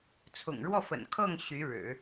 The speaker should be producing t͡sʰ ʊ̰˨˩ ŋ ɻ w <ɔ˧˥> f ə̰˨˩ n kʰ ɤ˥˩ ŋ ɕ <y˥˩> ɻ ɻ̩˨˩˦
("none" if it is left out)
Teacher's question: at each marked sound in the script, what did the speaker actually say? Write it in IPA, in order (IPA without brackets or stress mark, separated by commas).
ɔ˥˩, y˧˥